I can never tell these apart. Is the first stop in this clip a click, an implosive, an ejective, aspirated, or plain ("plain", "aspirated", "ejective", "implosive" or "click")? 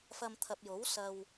aspirated